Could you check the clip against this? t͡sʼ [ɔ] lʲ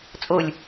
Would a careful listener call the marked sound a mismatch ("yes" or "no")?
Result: yes